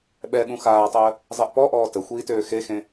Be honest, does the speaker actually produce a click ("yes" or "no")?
no